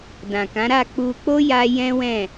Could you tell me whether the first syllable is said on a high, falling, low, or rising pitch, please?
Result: low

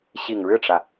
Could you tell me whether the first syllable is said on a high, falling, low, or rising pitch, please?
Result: low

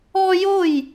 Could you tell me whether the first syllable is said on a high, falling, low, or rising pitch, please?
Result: high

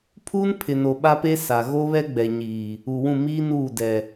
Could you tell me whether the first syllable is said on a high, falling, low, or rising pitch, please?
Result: high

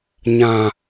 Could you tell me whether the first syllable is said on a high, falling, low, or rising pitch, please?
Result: low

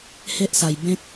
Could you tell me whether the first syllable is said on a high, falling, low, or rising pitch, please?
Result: high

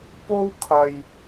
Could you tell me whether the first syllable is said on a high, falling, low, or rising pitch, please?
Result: high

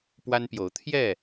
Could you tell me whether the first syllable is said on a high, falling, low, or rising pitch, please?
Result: high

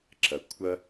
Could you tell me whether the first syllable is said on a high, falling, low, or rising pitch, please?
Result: low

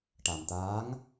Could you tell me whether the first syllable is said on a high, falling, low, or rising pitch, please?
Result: low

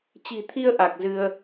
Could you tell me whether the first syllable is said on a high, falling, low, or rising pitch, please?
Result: low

